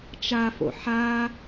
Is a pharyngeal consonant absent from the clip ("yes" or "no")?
no